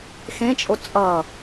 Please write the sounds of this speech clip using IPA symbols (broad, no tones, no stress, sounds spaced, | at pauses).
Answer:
x ẽ t͡ʃʼ o t͡sʼ ʌ